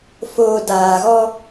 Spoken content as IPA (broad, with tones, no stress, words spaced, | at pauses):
foː˨ daː˨ɣɔ˦